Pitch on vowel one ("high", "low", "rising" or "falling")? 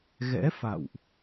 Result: rising